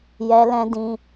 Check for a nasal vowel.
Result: present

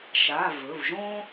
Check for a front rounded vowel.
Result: absent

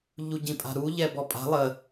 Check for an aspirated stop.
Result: absent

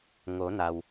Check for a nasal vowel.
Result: absent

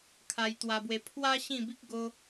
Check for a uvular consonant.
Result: absent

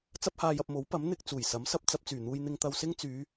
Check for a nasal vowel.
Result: absent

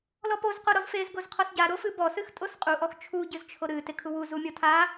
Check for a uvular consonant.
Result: present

